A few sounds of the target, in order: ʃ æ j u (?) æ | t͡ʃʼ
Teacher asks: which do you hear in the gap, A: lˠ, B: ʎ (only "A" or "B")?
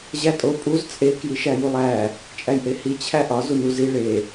A